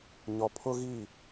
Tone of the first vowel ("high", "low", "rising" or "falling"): low